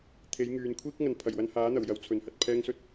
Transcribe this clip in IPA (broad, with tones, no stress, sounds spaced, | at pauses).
t̪ʰ e˨˥ j ŋ yː˨˧ n kʷʰ iː˥ k̚ ŋ ɐ˨ n pʰ ɐ˨˩ j w ɐ˧ n h aː˨˥ n̪ ɐ˨˩ w j ɐ˧ w t͡sʰ ɵ˨˥ n h ɐ˨ t̚ pʰ ɛː˥ ŋ s ɵ˥ t̚